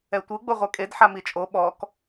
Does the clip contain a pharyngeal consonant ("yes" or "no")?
yes